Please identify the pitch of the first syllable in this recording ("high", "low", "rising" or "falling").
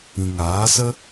low